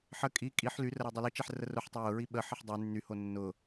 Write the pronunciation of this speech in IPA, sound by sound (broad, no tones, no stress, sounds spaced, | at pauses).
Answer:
ħ ə kʼ i kʼ i ħ l y r ə ɾ o dˤ ʊ l i t͡ʃ ɛ ħ r ə r ʊ ħ tˤ ʊ j ʊ ɹ i ɓ ə ħ ə ħ dˤ y nː y h o nː ʊ